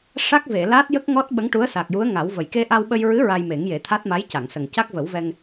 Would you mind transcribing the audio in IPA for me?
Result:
ʂa˦˥k̚ve˨˩˨la˦˥t̚ jə˦˥k̚ŋɔ˦˥t̚ ɓə˧˥ŋʈu˧˥ə̯sa˨˩k̚ju˧˥ə̯ ŋa˨˩˦wvə˨˩j ke˧ʔa˧wɓə˧jɹɨ˧˥ ɹa˧jme˨˩˦ŋje˨˩˦ t̪ʰa˦˥t̚ma˧˥jca˨˩˨ŋsə˨˩ŋ ca˦˥k̚və˨˩˦wvɛ˧ŋ

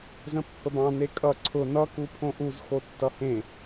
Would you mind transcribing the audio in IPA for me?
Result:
zə̃pːəbɑ̃ nekʼʌ ǀʰʊ nʌku pʰõʔuz xotːʌhẽ

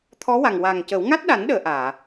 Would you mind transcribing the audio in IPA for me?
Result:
t̪ʰɔ˧˥wa˨˩ŋwa˨˩ŋcə˨˩˦w ŋa˦˥t̚ɗa˨˩˦nɗəː˨˩˨ ʔaː˨˩˨

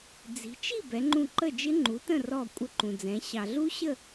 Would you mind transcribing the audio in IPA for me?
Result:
d͡zi̤˩˧t͡ʃi˥˨ bɛ˩˧ŋ͡ǃũ˧˩ ǃə˥˨d͡ʒɪ˦˥ŋ͡ǃu˩˥tə̃˥˨ rɔ˧˩ kʷʼə˧˩ǃũ˩d͡zɛ̃˩˧ ɕɑ˩ɮu˦˥ɕə˥˨

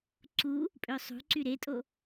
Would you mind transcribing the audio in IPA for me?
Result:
ǀu | pʼøsˤṳǀy ɾetʼo

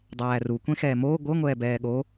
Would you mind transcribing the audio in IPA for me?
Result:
dˤæːru kʷẽxɛːmoː ɡʷɤ ŋʷɛːbɛːɠo

